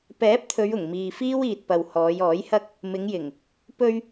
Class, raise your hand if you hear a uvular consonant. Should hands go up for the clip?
no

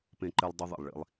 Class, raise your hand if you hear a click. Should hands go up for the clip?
yes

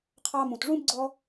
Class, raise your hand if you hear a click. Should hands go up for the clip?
yes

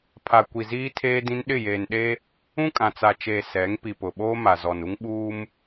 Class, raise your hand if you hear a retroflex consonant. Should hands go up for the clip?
no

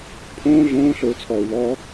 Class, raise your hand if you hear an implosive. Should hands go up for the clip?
no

